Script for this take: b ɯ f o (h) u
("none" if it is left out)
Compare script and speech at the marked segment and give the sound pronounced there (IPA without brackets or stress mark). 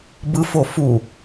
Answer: f